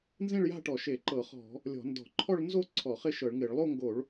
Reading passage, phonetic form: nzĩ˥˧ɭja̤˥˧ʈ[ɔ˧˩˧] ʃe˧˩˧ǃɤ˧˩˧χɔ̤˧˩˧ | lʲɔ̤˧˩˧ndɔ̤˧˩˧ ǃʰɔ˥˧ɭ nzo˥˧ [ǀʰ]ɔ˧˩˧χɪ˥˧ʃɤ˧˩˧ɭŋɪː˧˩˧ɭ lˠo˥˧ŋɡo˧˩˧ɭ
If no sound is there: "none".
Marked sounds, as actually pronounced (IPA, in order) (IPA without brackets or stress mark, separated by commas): ɔ˧˩˧, ǀʰ